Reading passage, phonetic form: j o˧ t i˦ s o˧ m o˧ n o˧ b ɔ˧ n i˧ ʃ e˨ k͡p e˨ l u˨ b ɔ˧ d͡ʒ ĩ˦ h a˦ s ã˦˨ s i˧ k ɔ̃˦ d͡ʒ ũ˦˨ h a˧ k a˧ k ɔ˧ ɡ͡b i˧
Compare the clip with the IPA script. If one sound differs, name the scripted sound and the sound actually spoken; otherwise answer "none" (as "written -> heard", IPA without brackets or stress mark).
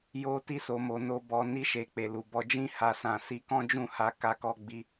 none